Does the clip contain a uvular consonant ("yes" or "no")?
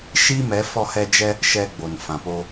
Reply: no